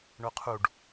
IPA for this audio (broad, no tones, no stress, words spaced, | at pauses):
ɳoqʰuɖ